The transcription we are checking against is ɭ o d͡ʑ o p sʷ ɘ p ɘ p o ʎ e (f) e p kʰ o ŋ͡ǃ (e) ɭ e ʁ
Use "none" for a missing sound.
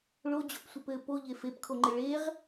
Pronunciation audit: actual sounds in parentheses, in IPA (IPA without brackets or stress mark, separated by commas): f, ɘ